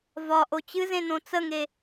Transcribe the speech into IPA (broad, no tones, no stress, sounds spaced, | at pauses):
v ɒ ʔ o t͡ɕ ɨ z ẽ n õ t͡s ə ŋ e